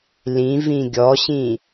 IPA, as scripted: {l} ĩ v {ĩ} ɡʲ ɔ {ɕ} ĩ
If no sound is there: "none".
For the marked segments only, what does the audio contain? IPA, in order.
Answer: l, ĩ, ɕ

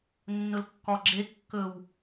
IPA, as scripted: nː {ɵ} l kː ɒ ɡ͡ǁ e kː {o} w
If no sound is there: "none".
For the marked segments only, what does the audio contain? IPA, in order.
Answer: ɵ, ɵ

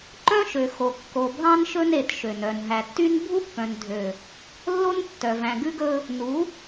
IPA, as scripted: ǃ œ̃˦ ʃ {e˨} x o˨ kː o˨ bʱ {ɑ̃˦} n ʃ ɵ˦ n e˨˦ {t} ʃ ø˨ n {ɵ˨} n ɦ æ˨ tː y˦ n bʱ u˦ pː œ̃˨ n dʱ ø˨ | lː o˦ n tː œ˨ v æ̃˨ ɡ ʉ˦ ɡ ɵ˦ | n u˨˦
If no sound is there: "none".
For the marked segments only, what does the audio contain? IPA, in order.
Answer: ø˨, ɑ̃˦, t, œ˨

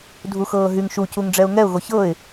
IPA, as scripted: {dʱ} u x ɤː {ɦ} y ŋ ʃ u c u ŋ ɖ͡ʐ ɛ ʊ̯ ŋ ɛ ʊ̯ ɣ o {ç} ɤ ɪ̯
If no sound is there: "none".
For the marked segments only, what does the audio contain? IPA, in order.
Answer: dʱ, ɦ, ç

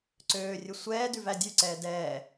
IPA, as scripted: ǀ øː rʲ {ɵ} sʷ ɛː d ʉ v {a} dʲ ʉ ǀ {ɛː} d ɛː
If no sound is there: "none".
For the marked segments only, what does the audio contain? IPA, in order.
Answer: ɵ, æ, ɛː

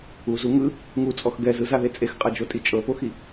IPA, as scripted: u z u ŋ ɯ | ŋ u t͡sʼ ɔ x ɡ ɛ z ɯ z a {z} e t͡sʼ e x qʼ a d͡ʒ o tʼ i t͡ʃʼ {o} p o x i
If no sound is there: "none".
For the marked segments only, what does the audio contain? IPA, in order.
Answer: ð, ɤ

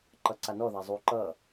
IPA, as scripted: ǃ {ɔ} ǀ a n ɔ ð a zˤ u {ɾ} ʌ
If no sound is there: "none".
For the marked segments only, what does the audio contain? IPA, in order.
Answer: ʌ, ǃ

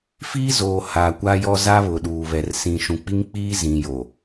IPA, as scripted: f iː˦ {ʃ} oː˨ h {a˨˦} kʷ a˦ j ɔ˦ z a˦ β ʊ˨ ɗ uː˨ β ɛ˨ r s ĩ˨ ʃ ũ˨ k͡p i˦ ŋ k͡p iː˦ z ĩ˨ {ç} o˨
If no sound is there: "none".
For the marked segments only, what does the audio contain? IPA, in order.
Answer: z, a˨, j

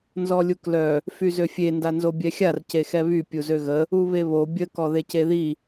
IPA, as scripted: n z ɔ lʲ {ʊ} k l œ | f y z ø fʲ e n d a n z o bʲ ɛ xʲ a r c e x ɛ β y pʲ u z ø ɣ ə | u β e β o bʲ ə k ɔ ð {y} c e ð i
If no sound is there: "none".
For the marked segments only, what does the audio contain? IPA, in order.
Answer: u, e

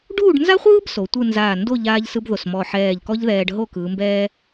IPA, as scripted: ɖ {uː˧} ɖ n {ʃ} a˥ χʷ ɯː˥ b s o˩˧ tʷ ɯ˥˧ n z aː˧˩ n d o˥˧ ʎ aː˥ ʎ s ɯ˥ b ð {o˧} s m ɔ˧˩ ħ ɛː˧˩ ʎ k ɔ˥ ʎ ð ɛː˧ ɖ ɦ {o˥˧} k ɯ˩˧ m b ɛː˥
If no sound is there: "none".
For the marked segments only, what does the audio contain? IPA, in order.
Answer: uː˥˧, z, o˧˩, o˥˧

